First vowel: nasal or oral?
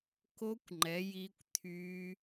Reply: oral